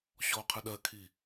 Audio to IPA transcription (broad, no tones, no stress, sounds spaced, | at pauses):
ɕ ɔ qʰ ɯ ɗ ɜ kʰ i